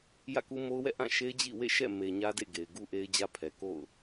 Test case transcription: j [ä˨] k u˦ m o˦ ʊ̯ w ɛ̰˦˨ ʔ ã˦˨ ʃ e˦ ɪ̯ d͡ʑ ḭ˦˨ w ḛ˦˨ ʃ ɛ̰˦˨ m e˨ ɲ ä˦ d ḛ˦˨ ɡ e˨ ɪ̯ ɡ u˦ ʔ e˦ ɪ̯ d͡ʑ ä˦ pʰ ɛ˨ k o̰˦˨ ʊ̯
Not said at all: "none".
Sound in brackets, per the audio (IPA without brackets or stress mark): ä̰˦˨